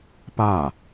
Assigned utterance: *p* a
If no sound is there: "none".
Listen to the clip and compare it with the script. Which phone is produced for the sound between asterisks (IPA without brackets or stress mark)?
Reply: p